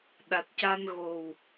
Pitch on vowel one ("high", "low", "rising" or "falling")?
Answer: low